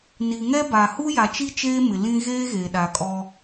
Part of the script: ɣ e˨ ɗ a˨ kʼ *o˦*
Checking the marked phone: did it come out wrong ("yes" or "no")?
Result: yes